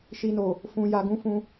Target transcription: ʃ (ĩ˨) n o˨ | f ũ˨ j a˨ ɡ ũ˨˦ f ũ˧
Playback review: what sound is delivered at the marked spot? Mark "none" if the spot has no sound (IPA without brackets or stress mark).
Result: i˨